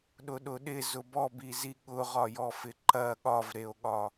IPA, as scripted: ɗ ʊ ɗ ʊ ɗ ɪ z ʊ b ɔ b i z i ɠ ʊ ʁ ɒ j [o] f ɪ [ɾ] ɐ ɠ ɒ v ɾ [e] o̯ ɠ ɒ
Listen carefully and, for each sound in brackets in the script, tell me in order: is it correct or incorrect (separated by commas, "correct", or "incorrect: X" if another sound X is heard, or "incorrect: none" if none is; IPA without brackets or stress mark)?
incorrect: ɔ, incorrect: ǃ, correct